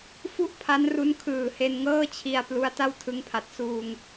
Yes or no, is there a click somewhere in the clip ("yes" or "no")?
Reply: no